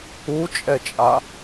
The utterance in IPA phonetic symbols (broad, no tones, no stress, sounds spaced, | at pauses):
u t͡ʃʼ ɛ t͡ʃʼ a